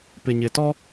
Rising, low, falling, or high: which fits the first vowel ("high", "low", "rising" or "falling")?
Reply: low